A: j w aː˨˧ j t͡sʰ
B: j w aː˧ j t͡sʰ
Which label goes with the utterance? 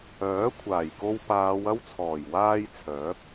B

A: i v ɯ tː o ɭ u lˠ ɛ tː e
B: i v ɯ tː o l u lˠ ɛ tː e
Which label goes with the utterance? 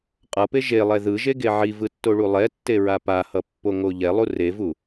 A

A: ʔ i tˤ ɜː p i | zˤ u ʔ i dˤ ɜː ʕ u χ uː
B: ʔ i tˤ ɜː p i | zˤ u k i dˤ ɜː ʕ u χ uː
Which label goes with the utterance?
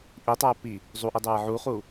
A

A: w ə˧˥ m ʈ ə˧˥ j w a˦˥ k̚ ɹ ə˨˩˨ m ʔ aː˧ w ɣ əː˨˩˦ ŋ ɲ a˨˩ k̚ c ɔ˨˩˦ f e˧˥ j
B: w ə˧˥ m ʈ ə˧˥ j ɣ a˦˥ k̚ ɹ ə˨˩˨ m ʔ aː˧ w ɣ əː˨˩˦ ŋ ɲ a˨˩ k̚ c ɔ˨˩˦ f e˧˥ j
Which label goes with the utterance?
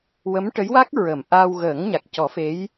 A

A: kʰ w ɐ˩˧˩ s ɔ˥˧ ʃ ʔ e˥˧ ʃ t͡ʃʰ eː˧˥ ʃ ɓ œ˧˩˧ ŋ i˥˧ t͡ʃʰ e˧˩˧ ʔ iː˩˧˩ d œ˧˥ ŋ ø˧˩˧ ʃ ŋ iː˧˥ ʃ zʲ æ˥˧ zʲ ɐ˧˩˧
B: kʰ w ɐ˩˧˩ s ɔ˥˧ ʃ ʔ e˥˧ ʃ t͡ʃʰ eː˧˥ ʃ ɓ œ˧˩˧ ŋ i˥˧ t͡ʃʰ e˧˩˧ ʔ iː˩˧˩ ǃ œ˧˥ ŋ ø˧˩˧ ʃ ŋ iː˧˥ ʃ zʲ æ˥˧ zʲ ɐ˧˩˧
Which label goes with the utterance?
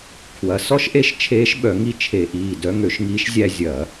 A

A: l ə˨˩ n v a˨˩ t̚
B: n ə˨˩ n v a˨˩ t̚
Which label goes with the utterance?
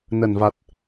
B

